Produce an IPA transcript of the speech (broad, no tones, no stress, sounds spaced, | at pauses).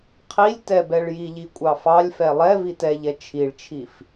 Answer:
qʰ i lʲ t ɛ b ɛ ɭ j i ʎ i kʷʼ ɑ f ɑ lʲ f ɛ lˠ ɛ v i t ɛ ʎ ɛ t͡ʃʰ i ɭ t͡ʃʰ i f